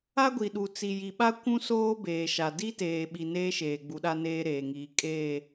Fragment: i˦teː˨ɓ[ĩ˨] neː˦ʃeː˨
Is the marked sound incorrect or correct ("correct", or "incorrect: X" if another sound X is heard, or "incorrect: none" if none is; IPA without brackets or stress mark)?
incorrect: i˨